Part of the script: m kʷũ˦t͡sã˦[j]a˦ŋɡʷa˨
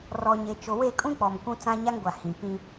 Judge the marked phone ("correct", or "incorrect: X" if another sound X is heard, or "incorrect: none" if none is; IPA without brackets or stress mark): incorrect: ɲ